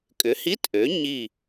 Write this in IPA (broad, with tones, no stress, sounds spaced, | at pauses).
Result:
kʼ ʏ˩˥ h i˧˥˧ t ʔ ø˩˥ ɲ i˧˩